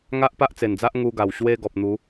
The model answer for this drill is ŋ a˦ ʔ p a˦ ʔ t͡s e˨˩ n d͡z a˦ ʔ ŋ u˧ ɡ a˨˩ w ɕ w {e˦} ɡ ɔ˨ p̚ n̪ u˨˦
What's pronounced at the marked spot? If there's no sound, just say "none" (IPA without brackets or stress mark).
e˦